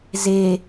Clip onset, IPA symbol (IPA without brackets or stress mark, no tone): z